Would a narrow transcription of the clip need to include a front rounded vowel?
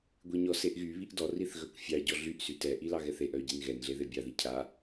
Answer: yes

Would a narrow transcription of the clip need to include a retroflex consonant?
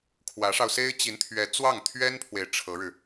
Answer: yes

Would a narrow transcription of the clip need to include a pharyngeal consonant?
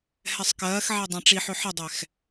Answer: yes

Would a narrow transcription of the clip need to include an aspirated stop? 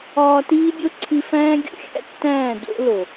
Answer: yes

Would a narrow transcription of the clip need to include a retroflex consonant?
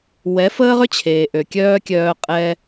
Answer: no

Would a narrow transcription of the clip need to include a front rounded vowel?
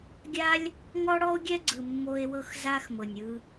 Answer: no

